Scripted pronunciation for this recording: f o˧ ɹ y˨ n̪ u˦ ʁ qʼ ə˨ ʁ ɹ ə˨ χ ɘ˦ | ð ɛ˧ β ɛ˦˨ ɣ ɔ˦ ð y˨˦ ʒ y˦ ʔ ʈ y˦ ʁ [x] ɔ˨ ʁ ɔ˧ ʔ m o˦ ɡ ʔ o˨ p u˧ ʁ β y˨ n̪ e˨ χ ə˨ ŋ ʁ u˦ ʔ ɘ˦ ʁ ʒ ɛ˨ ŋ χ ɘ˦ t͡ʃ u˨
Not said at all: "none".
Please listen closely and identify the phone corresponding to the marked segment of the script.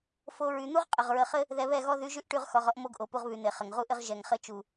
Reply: x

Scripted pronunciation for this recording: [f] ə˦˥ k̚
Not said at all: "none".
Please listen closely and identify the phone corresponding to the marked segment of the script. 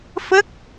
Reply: f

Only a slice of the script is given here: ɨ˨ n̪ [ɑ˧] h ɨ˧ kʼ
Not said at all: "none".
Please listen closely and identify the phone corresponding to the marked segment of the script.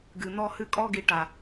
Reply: ɔ˧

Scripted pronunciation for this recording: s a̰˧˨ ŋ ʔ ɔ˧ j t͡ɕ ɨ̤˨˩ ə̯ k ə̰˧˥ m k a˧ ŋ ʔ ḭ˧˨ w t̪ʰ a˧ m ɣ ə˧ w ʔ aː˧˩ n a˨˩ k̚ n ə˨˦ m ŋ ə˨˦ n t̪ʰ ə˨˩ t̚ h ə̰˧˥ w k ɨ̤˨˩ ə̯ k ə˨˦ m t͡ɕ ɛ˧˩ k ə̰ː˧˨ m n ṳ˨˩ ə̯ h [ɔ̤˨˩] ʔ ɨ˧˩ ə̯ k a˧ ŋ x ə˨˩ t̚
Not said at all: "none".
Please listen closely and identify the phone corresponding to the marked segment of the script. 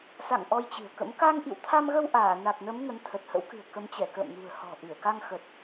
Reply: ɔ̤˨˩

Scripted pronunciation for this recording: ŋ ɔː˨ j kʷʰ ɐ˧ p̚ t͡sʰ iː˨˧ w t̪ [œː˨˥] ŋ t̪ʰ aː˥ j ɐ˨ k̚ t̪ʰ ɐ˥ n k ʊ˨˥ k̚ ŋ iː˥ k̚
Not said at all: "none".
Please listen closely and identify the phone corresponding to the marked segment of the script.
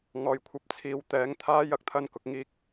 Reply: ɛː˨˥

